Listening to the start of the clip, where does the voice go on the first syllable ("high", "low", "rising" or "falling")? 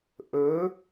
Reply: rising